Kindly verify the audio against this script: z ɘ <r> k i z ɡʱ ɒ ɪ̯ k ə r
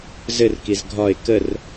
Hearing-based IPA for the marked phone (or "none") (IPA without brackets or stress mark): r